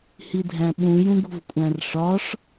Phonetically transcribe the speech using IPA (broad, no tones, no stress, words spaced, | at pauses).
hidʱæ̃ɓũ jũɡṳvkʷʼæ̃rʂɒʂ